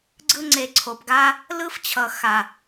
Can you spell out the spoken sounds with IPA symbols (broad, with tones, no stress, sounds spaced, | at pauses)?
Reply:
ɡ͡ǀ ɯ˧ ŋ͡ǀ e˨ ǀʰ o˨ p ɡ a˧ | l ɯ˧ f t͡ɕʰ ʌ˨ x a˨